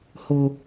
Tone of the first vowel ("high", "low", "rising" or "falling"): low